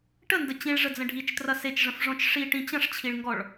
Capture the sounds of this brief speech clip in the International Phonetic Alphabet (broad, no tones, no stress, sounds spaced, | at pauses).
ʈ ə n d ə t͡ɕ ĩ ɭ ʐ ə d͡z ə̃ ɖʱ i t͡ʃ t r ɐ s e t͡ʃ ʐ ə̃ f ʐ ɔ̃ t͡ʃ ʂ i ʈ ĩ t͡ɕ ɐ̃ ʂ t͡ɕʰ i ɭ ŋ ɡ ɔ ɭ